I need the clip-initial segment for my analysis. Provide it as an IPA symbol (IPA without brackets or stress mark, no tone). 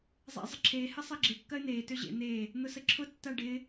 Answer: zˤ